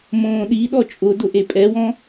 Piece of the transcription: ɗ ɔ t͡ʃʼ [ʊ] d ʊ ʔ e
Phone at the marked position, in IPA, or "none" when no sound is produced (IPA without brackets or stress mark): ʊ